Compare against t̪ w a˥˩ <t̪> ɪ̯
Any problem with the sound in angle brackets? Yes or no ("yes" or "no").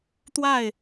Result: yes